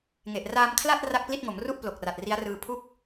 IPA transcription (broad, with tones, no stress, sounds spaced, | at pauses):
ŋ e˨˩ ʔ r aː˧ m kʰ l a˥˩ t̚ r a˥˩ k̚ p l i˥˩ t̚ ŋ o˩˦ m r u˥˩ ʔ p l o˨˩ k̚ r a˨˩ t̚ r i˦˥ a̯ r ɯː˧ pʰ u˥˩ k̚